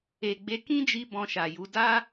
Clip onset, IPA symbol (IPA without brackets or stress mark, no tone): e